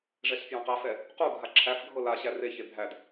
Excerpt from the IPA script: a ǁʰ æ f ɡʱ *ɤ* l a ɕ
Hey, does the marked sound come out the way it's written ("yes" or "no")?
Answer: yes